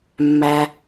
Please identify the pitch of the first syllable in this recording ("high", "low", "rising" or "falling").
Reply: low